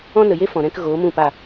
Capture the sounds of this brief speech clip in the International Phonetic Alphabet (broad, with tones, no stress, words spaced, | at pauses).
ɔ̃˦nə˨je˦ fɔ̃˨ ɾɛ̃˦kɣoː˨˦ mũ˦˨pa˦˨